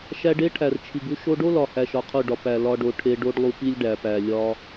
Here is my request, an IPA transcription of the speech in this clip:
ʃ æ˧ ɖ e˦ ʈʰ æ˨ r t͡ʃʰ i˨ ɡ u˦ ʃ o˧ ɖ o˦ l ɒ˨ h æ˧ ʃ ɒ˧ qʰ u˦˨ ɖ ɒ˧ p æ˨ l ɒ˧ ɖ o˨ ʈʰ e˧ ɖ o˦ ɖ lˠ u˧ p i˦ lʲ ɖ æ˨ p æ˨ lʲ ɒ˦

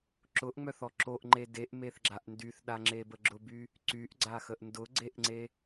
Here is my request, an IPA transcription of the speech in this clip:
ǁ ʊ ʔ ŋ͡m œ θ ɔ ǁ o ʔ ŋ͡ǃ e d e ʔ m e θ ɡ͡ǁ a ʔ n d y θ ɗ a ŋ͡ǁ e b ə ɡ͡ǁ ʊ b y | ǀ y ʔ ɡ͡ǀ a x ə ʔ n d ʊ ɡ͡ǀ e ʔ ŋ͡ǀ e

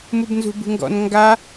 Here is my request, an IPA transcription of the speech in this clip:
m u b n z ṳ b ṳ ŋ ɡ ɔ̰ n ŋ ɡ a

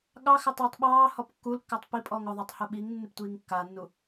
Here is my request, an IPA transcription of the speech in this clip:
ɠ ɑ x ɪ tˤ iː tˤ ɓ ɑː h ɔ p kː u l kː ɪː tˤ p i pʼ ɔː ŋ ʊ ðˤ u tˤ h ʊ ɓ i ŋ nː ɪ p tʷ iː ŋ kː a nː u

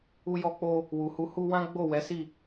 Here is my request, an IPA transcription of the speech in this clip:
u˦ j ɔ˧ k͡p o˧ | w u˨ h u˧ h u˧ w ã˦ ɡ͡b o˦˨ w ɛ˨˦ s i˦˨

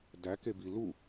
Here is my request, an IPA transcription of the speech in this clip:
d æ k e b i l u

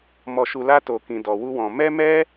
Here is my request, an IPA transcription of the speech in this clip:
m ɔ˧ ʃ u˧ l a˦ t o˧ k ĩ˧ d ɔ˧ w u˦ w ɔ̃˧ m ɛ˦ m ɛ˦

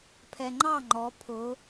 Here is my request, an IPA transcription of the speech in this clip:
pʰ ɛ ŋ͡ǃ ɑ ŋ͡ǃ ɔ pʰ ʊ

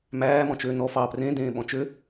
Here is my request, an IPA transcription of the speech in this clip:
m æː m ɔ̃ t͡ʃ øː n ɔ f ɑ p r ẽ d ẽː ɓ ɔ̃ t͡ʃ ø

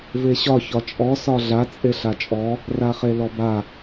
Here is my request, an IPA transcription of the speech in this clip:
v e ɕ ɒ ç ɒ t͡ʃʼ ɔ s ɒ ɮ a t͡sʼ e ɬ a t͡ʃʼ ɔ | r a χ e l ɔ b a

